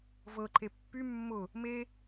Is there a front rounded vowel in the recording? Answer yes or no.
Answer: yes